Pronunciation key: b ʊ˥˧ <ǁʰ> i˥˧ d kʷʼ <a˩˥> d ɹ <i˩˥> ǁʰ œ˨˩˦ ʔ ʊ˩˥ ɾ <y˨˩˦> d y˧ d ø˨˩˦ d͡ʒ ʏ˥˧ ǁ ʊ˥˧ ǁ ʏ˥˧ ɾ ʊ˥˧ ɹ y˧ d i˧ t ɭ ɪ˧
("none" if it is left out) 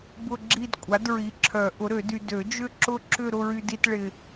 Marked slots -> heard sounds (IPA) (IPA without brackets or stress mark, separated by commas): ɡ͡ǁ, a˩˥, i˩˥, ø˨˩˦